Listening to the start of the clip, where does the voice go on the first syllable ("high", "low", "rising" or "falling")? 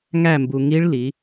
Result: falling